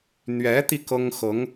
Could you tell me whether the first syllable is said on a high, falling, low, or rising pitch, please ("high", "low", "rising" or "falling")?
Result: rising